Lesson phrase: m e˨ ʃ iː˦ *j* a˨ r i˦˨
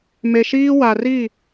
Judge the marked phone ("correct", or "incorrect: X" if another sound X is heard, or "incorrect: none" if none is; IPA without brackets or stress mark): incorrect: w